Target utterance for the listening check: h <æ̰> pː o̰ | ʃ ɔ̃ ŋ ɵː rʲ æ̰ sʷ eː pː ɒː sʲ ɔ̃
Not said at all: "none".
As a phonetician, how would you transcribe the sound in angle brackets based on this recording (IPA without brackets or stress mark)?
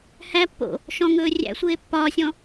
æ